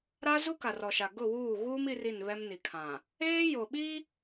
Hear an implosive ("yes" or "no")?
yes